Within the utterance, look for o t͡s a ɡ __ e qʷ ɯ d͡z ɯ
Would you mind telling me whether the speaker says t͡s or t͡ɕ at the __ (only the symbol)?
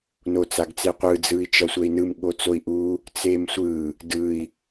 t͡s